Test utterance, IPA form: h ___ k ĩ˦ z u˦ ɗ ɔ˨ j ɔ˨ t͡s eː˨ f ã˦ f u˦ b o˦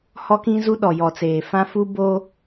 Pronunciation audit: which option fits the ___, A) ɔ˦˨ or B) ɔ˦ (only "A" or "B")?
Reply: B